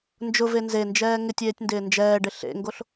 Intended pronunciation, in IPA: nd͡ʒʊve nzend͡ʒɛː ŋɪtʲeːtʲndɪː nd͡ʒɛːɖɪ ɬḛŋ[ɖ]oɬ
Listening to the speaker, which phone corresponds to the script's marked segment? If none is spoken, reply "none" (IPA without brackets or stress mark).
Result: ɡ